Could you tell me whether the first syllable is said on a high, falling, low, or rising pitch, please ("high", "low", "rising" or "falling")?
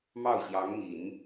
falling